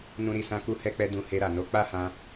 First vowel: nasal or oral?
nasal